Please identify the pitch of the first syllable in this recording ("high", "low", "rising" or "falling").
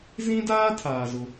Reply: high